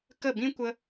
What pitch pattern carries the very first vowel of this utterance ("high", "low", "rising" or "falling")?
falling